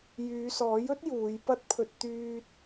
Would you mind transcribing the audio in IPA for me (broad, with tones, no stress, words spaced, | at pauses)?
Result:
jyː˨˧sɔː˨˥jɵ˥t̚ juː˨˧jpɐ˥t̚pʰɵ˧t̚ t̪yː˧t̚